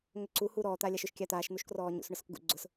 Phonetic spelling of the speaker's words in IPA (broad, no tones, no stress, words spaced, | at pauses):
ŋʏǀu huːɾɔː t̪aːlʲaʃʏʃ kʲat̪aːʃ n̪uʃkrɔːɲṵs ɳʊsʊkɡṵ ɡ͡ǀʊs